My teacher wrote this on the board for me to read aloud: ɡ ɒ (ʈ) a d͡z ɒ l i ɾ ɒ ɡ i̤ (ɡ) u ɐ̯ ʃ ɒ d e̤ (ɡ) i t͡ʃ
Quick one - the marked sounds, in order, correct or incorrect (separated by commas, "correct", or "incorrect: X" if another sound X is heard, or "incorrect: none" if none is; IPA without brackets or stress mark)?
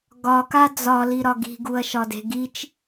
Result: incorrect: k, correct, correct